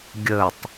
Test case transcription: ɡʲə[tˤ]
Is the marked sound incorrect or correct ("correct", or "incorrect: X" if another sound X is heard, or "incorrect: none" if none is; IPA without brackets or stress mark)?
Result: correct